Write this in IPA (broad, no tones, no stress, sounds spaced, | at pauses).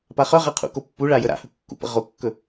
p a χ œ ʁ a qʰ ṵ k o pː u ɭ a j ə ɾ a̰ h ɵ kː ṵ p ə̰ ʁ o kː ɵ